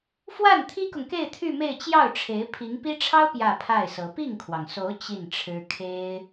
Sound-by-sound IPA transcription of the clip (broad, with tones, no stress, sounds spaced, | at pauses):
f w a˥˩ n t̪ʰ i˥ k ʊ˨ ŋ k e˥˧ ɪ̯ t̪ʰ y˥˧ m e˥˧ ɪ̯ t͡ɕ j ɑ˥˩ ʊ̯ ʈ͡ʂʰ e˧˥ ɪ̯ pʰ i˧˥ ŋ p i˥ ʈ͡ʂʰ ɑ˥ ʊ̯ p j ä˥˧ pʰ a˥˩ ɪ̯ s ɤ˧˥ p i˥˩ ŋ kʰ w ɑ˩ ŋ s o˧˥ ʊ̯ t͡ɕ i˥˩ n ʈ͡ʂʰ ɻ̩˥ kʰ e˥ ɪ̯